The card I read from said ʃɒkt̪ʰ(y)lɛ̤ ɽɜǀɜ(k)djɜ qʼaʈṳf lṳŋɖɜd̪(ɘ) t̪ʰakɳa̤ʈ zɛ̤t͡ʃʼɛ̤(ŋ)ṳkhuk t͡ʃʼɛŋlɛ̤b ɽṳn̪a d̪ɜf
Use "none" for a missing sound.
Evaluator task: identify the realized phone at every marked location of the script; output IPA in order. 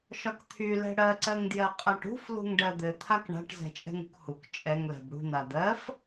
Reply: y, ŋ, ɘ, ŋ

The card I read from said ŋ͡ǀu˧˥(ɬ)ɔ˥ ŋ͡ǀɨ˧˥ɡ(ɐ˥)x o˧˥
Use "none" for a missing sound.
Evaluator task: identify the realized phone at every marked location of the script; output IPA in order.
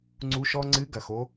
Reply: ʃ, ɐ˩

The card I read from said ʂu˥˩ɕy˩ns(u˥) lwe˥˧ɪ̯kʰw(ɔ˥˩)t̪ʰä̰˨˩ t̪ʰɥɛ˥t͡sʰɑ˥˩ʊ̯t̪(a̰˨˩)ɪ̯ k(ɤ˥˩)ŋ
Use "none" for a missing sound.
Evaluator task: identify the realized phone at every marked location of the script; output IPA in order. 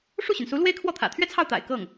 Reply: u˧˥, ɔ˥˩, a̰˨˩, ɤ˥˩

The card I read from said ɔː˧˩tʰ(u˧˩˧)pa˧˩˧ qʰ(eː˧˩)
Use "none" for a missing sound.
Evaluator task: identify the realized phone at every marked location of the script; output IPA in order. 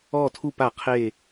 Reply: u˧˩, eː˧˩

